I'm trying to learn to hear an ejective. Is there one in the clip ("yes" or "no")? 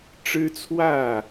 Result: no